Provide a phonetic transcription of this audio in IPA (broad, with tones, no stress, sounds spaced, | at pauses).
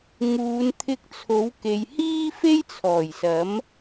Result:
ŋ uː˨˧ n t̪ʰ ɪ˧ k̚ t͡sʰ o˨˥ w k e˨ j h iː˥ f e˥ j t͡sʰ ɔː˨˩ j s ɐ˨˥ m